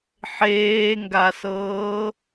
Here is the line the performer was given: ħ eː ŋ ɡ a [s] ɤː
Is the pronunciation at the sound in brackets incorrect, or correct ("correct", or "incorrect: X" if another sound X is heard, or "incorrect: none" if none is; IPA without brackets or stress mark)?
correct